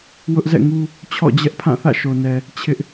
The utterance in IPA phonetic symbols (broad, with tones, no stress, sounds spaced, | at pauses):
w ʊ˦ ʔ z ɛ̰˦˨ ŋ u˦ | t͡ɕʰ ɔ̰˦˨ d͡ʑ ɛ˦ ʔ pʰ ã˦˨ θ ä̰˦˨ ʃ o˨ n ɛ˨ | t͡ɕʰ ɪ˦ ʔ